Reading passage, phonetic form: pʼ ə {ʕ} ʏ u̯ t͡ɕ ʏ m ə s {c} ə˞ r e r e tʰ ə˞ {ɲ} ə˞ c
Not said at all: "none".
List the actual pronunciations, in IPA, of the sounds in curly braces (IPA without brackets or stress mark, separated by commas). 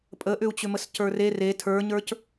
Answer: ʔ, c, ɲ